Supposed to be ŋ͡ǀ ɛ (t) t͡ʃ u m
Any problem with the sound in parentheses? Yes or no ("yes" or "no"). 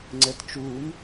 no